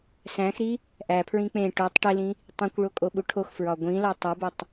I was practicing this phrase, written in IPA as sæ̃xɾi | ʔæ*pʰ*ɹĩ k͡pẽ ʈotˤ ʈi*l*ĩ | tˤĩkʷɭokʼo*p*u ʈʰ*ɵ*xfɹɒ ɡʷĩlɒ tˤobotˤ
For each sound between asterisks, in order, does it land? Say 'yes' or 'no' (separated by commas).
yes, yes, no, no